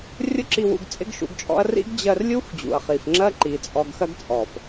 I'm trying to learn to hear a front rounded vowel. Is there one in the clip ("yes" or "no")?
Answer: no